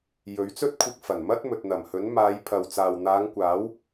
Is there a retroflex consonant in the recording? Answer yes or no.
no